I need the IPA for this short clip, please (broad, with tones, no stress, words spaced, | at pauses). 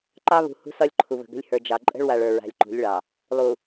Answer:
ǃɑ˦βṳ˨ hṳ˦sɒ˦lʲ ǃʰu˨βə̤˨ɡə̤˦lʲ hə˞˨ d͡ʒɑ˨ ǃʼə̤˦ɭwa˨ɭ ə˞˨ɹa̤˨lʲ ǃṳ˨˦lʲɭɑ˨ | lˠu˨